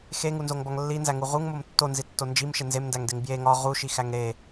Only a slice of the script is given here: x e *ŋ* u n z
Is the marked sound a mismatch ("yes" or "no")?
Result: no